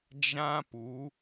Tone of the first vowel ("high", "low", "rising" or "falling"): high